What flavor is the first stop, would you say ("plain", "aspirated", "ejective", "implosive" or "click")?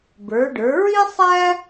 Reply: plain